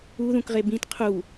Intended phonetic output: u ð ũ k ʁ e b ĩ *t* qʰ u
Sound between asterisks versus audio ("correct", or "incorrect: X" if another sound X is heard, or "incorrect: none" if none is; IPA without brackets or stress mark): correct